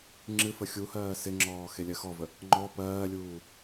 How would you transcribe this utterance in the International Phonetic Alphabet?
ŋ͡ǁ ɨ f ə xʲ u h ɜː s ɪ ŋ͡ǁ ɔː x e lʲ ɜ x ɔ v ə | ŋ͡ǃ ɔ p ɜː lʲ uː

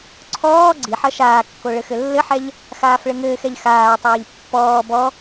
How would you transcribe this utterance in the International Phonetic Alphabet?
ǀʰ ɔː ɡ͡ǀ i ħ ɐ ʃ aː kː o ɭ ɘ x ɘ lː ɘ ħ ɛ ʎ | x aː f ɭ ɘ ŋ ɘː x ɛ ʎ x aː tˤ ɘː ʎ pː ɔː b ɔ

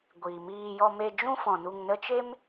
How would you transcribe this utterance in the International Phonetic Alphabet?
ɡʷ iː˨ m iː˧ j ɔ˧ m e˧ d͡ʒ ũ˦ f ɔ̃˨ n u˧ ŋ n ə˦ t͡ʃ e˦ m

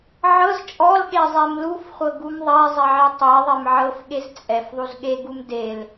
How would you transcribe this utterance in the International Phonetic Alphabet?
ʕ ɤ z t͡ʃʼ ɔ l ɠ e zˤ e m l u f χʷ ɤ ɡ u m ðˤ ɛ zˤ ɛ ʕ ɛ tˤ e ðˤ e m ʕ ɤ f ɠ e z t͡sʼ ɛ f ðˤ u z ɠ e ɡ u m d e l

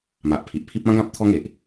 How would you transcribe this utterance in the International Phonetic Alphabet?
m a˨ ʔ pʰ i˨ ʔ pʰ i˦ p̚ ã˦ ɡ ã˦ p̚ t̪ʰ ɔ˧ ŋ e˨ ʔ

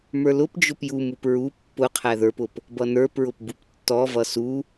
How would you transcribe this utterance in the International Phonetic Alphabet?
m ə˞ l ʊ p d͡ʒ ʊ p j u m u p ɹ u pː ʊ qʰ æ ð ə˞ p ʊ p | b ʌ n ə˞ p ɹ ʊ p b u p tː ɔ v ʌ s u

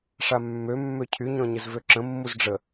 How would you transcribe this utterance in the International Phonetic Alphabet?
ʂ a mː ø mː ø cʰ y ɲ ɔ̃ ɲ ɘ z v ø ǁ ə̃ mː u z ɖ͡ʐ ə

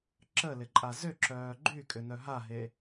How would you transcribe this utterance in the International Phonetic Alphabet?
ǁ ə l ɪ ǃʼ a z ʏ ǁ œː ɡ͡ǃ y kʼ ʏ n œ ɦ a ɦ e

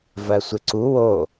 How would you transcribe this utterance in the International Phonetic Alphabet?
v ɜ sʷ ɪ ǀ u w o

